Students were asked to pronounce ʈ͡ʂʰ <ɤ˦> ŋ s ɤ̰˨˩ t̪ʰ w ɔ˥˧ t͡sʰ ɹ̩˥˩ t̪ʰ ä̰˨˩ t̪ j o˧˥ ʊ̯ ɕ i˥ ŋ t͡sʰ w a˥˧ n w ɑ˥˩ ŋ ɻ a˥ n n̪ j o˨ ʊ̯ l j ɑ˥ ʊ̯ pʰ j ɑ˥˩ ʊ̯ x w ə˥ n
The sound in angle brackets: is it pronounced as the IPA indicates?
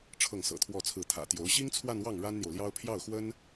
no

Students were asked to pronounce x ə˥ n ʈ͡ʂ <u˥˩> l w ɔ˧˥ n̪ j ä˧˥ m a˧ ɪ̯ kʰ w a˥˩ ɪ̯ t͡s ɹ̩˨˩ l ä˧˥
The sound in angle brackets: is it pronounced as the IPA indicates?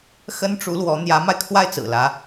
no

